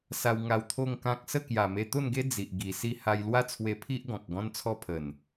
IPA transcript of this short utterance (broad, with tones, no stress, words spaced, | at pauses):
sa˧wŋa˧w t̪ʰo˥˧ŋkã˦k̚ sə˥˧kja˨˩ me˧t̪o˥˧nɡe˦ d͡zi˨ʔɡi˨˩ si˥˧ ha˧jlwa˥˧t͡sʰwe˧ pʰi˦ʔɡɔ̃˨k̚ ɡɔ̃˦nt͡sʰɔ˦pʰə˨˩n